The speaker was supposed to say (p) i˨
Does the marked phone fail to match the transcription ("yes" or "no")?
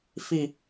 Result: yes